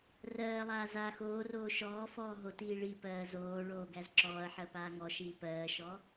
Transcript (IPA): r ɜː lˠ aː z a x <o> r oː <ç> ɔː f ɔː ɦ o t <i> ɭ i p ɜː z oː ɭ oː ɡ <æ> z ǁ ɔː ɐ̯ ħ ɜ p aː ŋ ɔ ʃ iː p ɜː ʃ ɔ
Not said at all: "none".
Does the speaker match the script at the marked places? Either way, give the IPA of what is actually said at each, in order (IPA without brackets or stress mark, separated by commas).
oː, ʃ, iː, æ